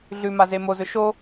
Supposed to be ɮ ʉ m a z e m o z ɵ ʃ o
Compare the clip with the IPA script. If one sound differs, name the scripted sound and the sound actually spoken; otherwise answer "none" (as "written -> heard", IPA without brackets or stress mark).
none